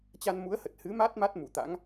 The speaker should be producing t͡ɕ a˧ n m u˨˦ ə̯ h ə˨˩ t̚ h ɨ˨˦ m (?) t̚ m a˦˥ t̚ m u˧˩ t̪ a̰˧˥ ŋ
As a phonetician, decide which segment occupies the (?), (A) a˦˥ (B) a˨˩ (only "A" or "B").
A